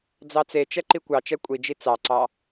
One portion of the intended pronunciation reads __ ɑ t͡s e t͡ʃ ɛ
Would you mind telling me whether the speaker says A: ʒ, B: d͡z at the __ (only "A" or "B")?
B